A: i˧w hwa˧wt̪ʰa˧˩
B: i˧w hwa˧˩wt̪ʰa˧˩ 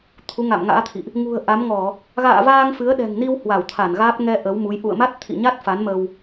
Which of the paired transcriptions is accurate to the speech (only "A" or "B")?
B